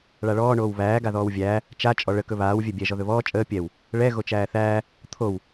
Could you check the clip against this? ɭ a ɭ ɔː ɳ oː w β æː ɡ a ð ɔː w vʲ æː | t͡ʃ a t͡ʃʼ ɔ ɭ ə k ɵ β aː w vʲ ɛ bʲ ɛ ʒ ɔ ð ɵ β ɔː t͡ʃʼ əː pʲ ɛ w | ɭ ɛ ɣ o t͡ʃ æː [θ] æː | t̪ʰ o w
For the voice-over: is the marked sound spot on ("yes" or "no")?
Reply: yes